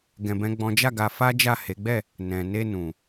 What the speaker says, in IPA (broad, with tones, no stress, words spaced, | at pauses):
ɡɛ̃˧bɛ̃˦ɡ͡bɔ̃˦ d͡ʒa˦˨ɡa˧fa˦d͡ʒa˦˨ he˨˦ɡ͡bɛ˦˨ | nɛ̃˨ne˧ nũ˨